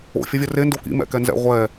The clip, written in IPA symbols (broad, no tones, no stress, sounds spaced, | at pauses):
o̰ fʲ ʌ vʲ ɐ r e n d o k ḭ m ɛ̰ k ɛ n z ɛ̰ ʁʷ ɛ